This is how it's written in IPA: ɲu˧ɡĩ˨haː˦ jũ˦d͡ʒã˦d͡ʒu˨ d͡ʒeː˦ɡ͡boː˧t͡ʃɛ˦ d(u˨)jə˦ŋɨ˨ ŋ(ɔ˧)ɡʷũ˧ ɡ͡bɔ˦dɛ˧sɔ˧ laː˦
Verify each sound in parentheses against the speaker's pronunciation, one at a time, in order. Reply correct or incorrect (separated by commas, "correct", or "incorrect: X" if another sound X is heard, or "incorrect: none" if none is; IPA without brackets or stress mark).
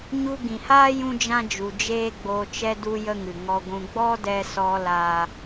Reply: incorrect: u˦, correct